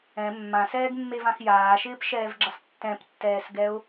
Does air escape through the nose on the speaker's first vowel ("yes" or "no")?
yes